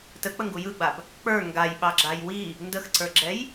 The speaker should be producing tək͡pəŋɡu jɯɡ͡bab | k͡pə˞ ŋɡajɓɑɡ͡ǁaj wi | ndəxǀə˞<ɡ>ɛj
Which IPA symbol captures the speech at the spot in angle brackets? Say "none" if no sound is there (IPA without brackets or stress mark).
ɡ͡ǁ